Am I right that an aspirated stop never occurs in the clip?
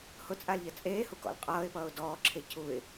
no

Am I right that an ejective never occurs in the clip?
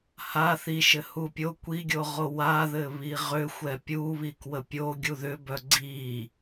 yes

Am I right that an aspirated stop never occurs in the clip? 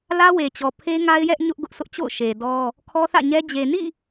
no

